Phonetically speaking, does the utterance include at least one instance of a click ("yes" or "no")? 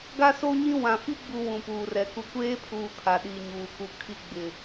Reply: no